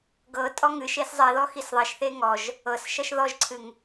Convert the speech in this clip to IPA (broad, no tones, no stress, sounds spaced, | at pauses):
ɡ ɤ tʼ ɔ ŋ ɨ ʃ e s zˤ i ð ɔ x i s ðˤ i ʃ θ e ŋ ɔ ʒ | ɤ s ʃ ʌ ʃ ð ɔ ʒ ǀʰ ɨ ŋ